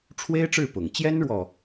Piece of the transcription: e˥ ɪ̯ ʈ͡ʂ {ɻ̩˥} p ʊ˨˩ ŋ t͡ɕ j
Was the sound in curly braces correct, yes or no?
no